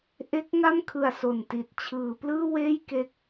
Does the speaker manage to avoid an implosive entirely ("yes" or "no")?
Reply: yes